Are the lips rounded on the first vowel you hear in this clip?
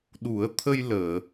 yes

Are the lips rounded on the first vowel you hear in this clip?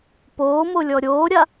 yes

